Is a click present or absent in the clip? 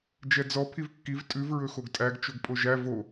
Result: absent